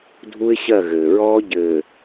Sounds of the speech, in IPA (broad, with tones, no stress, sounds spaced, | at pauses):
dʱ u˦ ɪ̯ ɕ ɜ˦˨ ɣ ɘː˨ ɹ ɔː˦ ɟ ɘː˨